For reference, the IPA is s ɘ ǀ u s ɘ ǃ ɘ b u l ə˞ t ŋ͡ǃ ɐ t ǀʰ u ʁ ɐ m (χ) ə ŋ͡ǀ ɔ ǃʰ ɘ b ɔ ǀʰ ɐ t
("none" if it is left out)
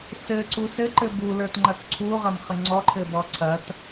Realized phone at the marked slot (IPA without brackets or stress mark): χ